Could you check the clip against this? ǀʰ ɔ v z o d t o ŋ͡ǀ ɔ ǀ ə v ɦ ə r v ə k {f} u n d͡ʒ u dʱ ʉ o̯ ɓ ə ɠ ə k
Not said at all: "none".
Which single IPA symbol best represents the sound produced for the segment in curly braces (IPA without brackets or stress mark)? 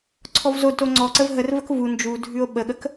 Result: v